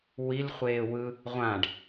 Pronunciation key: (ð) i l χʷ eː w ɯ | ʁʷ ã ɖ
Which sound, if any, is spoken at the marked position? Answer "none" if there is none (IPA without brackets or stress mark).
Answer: w